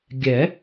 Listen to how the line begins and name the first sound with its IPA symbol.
ɡʲ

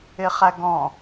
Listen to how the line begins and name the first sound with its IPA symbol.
ɪ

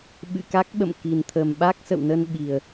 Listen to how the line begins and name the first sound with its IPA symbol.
ɓ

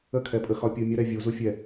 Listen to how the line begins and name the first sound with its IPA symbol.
ə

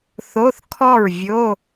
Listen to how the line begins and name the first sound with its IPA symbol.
θ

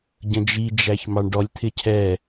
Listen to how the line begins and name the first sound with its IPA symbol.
ɟ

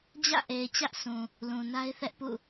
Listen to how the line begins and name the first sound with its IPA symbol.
d͡ʑ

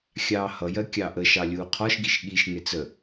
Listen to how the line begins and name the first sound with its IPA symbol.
xʲ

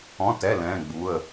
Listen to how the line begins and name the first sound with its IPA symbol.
ɔ̃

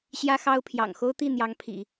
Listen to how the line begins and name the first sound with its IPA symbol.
ɕ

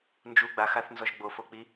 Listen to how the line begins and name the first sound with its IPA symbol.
n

